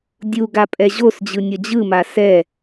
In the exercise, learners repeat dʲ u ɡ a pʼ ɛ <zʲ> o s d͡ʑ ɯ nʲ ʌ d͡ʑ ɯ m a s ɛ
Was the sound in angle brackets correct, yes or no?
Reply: no